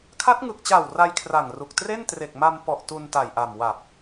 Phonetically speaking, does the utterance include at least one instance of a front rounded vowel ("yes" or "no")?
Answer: no